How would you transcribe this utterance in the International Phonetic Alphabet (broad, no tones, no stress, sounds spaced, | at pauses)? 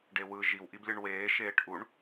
ɖ e w ɯ ʒ i w ʔ i b lʲ ɯ ɳ w eː ʃ eː ʈ ʔ u ɳ